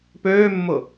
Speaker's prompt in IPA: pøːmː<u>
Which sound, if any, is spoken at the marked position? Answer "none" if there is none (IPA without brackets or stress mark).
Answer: ʊ